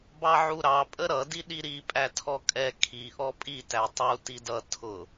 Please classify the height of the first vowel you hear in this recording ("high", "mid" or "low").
low